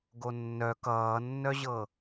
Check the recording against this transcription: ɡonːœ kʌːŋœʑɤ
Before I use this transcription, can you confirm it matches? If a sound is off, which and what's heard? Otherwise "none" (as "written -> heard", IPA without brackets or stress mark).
ŋ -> nː